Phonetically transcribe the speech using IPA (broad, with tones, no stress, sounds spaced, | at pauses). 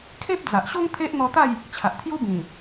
kʰ e˦ p̚ d͡z a˨ ʔ ɕ o˦ ŋ t̪ʰ e˦ ʔ n̪ ɔ˧ t̪ a˥˧ j | t͡ɕʰ a˨ ʔ t̪ʰ j u˦ b ĩ˨˩